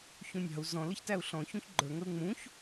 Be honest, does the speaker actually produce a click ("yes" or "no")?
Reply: yes